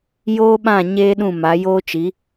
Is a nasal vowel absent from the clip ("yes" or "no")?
no